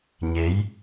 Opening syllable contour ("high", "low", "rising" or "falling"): rising